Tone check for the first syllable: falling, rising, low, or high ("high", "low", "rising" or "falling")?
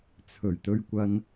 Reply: low